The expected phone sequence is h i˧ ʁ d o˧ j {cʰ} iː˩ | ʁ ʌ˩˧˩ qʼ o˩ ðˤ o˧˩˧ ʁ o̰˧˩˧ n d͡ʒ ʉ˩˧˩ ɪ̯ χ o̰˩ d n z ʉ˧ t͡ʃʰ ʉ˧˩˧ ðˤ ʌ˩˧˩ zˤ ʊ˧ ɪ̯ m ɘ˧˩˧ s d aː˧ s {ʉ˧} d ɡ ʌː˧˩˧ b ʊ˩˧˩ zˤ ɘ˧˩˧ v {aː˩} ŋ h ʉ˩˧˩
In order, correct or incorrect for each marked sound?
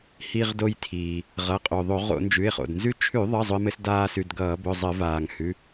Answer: incorrect: tʰ, incorrect: ʉ˩˧˩, correct

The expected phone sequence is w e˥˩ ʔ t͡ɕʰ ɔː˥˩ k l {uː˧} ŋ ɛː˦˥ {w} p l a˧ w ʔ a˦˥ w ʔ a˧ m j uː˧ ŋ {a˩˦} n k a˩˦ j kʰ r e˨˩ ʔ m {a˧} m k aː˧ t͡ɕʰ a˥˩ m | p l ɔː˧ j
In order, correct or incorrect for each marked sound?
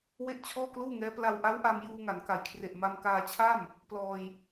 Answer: incorrect: uː˥˩, incorrect: none, correct, correct

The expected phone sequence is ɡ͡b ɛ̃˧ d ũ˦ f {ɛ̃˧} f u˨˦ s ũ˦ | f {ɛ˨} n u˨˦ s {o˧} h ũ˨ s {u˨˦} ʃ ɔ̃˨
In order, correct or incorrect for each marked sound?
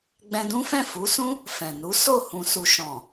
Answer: incorrect: ɛ̃˦˨, incorrect: ɛ̃˨, incorrect: o˦˨, incorrect: u˨

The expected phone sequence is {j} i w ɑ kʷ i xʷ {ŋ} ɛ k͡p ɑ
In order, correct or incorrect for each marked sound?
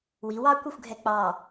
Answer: incorrect: w, incorrect: ɡʱ

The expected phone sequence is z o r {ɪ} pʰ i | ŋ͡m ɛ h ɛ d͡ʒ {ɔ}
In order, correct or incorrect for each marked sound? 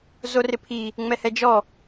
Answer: correct, correct

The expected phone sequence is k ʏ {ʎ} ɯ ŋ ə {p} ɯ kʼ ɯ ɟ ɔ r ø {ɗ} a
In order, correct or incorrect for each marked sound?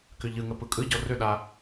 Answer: correct, correct, correct

